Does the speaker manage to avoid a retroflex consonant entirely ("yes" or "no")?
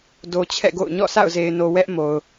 yes